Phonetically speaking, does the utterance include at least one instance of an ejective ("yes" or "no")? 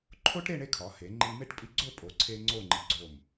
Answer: yes